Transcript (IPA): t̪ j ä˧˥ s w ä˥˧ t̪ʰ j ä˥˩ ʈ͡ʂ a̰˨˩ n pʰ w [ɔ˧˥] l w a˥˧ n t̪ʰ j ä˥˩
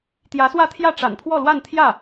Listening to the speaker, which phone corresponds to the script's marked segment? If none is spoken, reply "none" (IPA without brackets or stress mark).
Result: ɔ˥˧